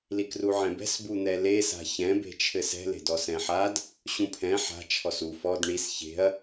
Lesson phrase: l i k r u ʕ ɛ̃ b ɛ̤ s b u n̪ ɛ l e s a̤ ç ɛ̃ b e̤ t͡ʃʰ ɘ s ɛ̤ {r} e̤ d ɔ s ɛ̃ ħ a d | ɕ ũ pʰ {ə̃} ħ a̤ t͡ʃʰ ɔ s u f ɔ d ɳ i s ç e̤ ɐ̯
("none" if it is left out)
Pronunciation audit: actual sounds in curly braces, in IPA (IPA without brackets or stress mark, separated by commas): l, ɛ̃